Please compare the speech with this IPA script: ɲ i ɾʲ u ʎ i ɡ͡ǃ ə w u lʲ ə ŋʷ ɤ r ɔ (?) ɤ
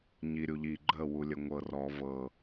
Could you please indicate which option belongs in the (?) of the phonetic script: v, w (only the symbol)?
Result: v